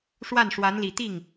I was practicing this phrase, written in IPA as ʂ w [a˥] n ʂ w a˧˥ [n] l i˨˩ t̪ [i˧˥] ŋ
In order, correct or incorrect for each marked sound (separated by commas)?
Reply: incorrect, correct, incorrect